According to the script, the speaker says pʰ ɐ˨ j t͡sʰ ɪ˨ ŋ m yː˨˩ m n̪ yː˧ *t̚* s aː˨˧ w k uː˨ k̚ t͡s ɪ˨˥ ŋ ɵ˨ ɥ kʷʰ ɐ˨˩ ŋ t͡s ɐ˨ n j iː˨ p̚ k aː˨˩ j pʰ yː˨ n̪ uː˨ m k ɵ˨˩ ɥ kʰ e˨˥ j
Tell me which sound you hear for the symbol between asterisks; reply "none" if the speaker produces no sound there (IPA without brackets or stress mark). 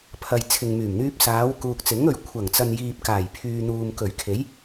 p̚